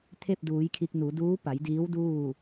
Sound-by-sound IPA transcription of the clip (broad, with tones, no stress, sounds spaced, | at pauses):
t̪ʰ e˥˨ p̚ d uː˩˧ j kʰ i˧ k̚ n u˩˧ d uː˧˥ p a˩˧ j d iː˧˥ w d uː˥˨